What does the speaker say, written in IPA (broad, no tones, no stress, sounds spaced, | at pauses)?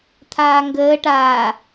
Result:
t̪ʰ aː ŋ ɡ əː ʈ aː